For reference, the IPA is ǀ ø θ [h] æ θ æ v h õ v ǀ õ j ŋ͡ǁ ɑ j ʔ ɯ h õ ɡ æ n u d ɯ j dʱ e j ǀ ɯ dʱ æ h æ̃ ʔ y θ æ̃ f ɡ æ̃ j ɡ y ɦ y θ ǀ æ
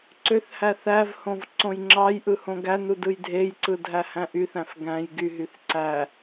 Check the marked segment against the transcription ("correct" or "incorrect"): correct